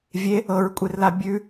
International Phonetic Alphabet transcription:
vʲe | ɤɹkʷʼerla bʲʉ

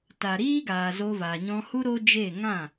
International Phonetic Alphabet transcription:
ta˨ɾiː˦ɡaː˨ zo˧vaː˨ɲɔ̃˧hu˦ ɾo˦d͡ʒe˦˨ ŋã˦˨

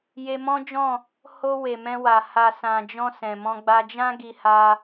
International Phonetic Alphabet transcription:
je˧mɔ̃˦d͡ʒɔ̃˦˨ | ho˧ we˨mɛ̃˧wa˨ ha˨sã˨d͡ʒɔ̃˧ sɛ̃˨mɔ̃˧ ɡ͡ba˧d͡ʒã˦ɡi˧ha˧

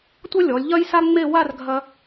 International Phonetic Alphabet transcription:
tʷʌ˥lʲɔ˩˧lʲ ʎɐ˥j sa˥ŋ͡me˥˧ wa˥˧rɡʱɐ˧

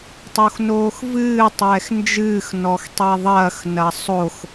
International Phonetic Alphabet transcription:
tˤoxnoːxvɨː tˤɛːxnd͡ʒɨːx nɔxtˤɛðˤɐːx nɐsˤox

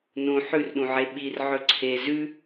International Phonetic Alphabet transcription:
nũ ħʉrɗũʕe ɓir ʕɵǀʰe zʉ

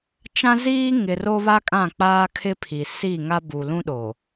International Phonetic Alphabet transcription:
t͡ʃã˦ziː˦ŋɪ˨ ro˦βa˦kʼã˦˨ k͡paː˦kʰɪ˦pʰi˨ si˦˨ŋa˦ bu˨lũ˦ɗoː˨

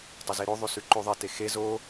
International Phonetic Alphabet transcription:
tˤozeɾo ðˤʉsʉǃʉðˤe texe zo

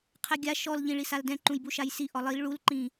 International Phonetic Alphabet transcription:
qʰɛɡʲa ʃɔlʎĩ ɭisaldɛ̃ ǃũjbuʃajsi ʔɔlˠil ɭulǃĩ

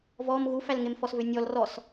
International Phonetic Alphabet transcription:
vɔm ɣufælŋemfɔs vʏnʲɔl rɔs

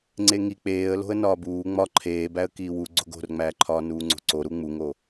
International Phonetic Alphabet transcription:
ŋ͡ǀeŋi k͡peːə̯ lo̤ə̯nɒːbuː ŋ͡mɒ ǃʰeːbæə̯ kiːwu ɡ͡ǀo̤ɡo̤rŋ͡mæːǃʰɒː nuːŋ͡ǀo̤ǀoɾu ŋ͡muŋo

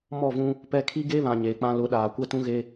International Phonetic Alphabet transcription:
mɔ˦˨vũ˦ | pɛ˦ kʰi˦ɡe˦βã˨ ɲeː˨k͡pã˦ lʊ˨˦ɗaː˨kʷɛ˦tũ˦ ɣe˦

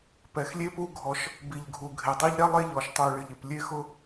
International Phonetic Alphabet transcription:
pɛ˨˩xlʲe˦pu˦ ɡʱɔ˦ʃ | bi˨˩ʎɡʱu˨˩ ɡʱe˨˩dˤi˦ʎ ɾɛ˦ lˠe˦ʎɔ˨˩ʃ tˤu˨˩ɭɪ˨˩ʎɪ˨˩p lʲe˦xʊ˦

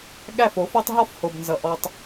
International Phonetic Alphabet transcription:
ɠæ˦˨fo˨˦fɔ˦tˤ ɦɔ˦fho˨bnzʌ˨ ʔɔ˧tˤ

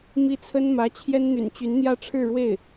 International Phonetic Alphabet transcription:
mi˥t͡sʰə˥nmä˧˥ t͡ɕʰjɛ˥nn̪y̰˨˩nt͡ɕy˧˥nn̪jä˥˧ ʈ͡ʂʰɻ̩˥˧ɻwe˥˩ɪ̯

